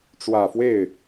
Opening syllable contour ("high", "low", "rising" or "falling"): low